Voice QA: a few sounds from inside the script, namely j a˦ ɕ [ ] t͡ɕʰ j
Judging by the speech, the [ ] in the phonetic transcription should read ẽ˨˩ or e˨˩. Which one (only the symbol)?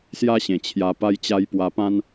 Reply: ẽ˨˩